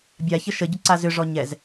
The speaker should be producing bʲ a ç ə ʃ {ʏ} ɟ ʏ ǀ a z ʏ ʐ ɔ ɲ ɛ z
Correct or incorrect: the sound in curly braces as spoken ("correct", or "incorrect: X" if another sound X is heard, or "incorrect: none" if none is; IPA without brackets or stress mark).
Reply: incorrect: ə